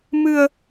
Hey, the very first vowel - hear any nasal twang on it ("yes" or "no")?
no